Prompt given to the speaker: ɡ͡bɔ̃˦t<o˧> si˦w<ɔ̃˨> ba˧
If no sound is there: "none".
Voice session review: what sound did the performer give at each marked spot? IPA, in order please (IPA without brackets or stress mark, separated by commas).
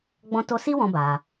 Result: o˦, ɔ̃˧